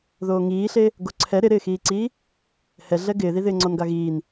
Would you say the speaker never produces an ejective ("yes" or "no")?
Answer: yes